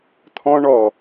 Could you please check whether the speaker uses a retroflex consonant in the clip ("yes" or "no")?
yes